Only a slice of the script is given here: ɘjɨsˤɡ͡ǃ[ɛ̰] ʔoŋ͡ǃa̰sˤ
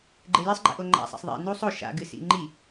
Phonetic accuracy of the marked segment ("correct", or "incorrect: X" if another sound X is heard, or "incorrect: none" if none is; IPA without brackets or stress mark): correct